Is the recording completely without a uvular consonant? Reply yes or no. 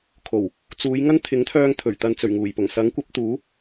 yes